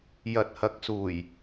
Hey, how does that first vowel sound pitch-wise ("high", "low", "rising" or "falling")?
low